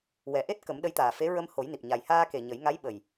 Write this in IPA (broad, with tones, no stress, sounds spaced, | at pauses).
w ɛ˨˩ ʔ e˦˥ t̚ k ə˨˩˦ m ɗ ə˧˥ j t̪ aː˨˩ f e˧˥ ɹ ə˧ m h o˨˩˦ j n i˨˩ p̚ ɲ a˨˩ j h aː˧ k e˨˩ ɲ ə˨˩˦ j ŋ a˧˥ j ɓ ə˨˩ j